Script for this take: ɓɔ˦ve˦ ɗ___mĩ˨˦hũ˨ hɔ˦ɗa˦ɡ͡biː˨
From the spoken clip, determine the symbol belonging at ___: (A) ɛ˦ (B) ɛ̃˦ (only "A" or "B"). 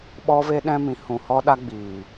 B